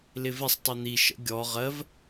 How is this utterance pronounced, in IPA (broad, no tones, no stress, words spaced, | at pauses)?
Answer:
lɪvɪsˤ tˤin̪i ʃə̰ɡʲɔ ʁɜv